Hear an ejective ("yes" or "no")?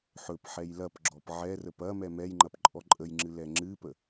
yes